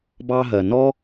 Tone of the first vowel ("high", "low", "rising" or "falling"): high